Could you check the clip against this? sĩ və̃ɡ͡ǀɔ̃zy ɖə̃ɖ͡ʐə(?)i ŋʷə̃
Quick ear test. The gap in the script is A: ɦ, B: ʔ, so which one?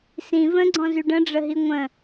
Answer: A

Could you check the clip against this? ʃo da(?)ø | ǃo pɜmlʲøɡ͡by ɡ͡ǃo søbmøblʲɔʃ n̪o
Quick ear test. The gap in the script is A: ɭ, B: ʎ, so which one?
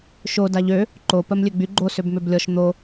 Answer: B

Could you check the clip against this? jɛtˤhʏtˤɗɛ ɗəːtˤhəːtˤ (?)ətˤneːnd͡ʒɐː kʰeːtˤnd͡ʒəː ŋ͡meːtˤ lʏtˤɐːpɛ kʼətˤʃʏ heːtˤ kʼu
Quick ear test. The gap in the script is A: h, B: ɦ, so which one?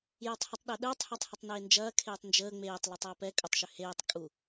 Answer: A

